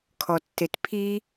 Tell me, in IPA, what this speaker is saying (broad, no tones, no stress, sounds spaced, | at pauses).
kʰ ɔ tː e t pʰ i